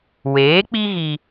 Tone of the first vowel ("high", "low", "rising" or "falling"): rising